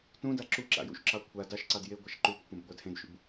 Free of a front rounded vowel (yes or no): yes